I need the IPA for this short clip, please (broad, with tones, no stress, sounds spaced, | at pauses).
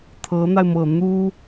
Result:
t̪ʰ ɤ˧˥ n̪ a˧ ɪ̯ m ɤ˨˩ n̪ u˥